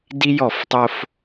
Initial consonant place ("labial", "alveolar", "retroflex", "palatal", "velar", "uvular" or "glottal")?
alveolar